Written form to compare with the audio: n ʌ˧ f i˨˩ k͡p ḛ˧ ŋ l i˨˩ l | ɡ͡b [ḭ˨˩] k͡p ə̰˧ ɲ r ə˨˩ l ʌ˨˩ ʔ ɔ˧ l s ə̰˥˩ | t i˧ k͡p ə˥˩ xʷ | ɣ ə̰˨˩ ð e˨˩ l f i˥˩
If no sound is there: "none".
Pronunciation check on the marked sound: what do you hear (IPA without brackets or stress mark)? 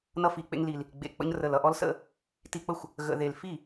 ḛ˨˩